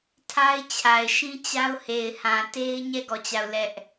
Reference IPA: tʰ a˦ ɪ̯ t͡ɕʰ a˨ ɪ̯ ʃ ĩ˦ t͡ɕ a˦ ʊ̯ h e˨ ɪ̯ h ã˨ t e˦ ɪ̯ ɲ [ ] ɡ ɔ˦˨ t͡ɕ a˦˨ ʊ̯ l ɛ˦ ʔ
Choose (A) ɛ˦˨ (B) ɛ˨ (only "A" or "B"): A